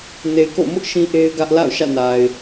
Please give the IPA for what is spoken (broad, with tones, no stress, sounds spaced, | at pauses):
n e˨ ɪ̯ k o̰˦˨ m ʊ˦ ʔ ʃ ĩ˦ ʔ e˦ ɪ̯ ɡ ä˦ ʔ l a̰˦˨ ʊ̯ ʃ ä̰˦˨ n a˨ ɪ̯